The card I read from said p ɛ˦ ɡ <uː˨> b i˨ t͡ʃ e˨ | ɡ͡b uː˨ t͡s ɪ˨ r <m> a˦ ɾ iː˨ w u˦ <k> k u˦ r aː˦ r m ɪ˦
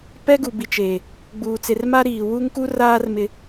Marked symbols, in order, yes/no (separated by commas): no, yes, no